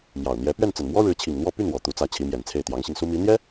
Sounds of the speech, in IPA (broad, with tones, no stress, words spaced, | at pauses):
mjɑ˨˩ʊ̯n̪jɛ˧˥ pɥɛ˥˩nt͡sə˨˩nmwɔ˥ ɻɻ̩˧˥t͡ɕʰi˨˩ŋ n̪wɔ˥˧ py˥˩n wɔ˨˩t̪u˧˥t͡sä˧˥ t͡ɕʰi˧˥mjɛ˨˩nt͡sʰe˥˩ɪ̯ t̪jɑ˧˥ŋɕi˧ŋsu˥ mi˧˥n̪jɛ˥